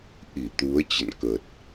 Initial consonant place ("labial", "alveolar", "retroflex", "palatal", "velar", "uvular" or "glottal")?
glottal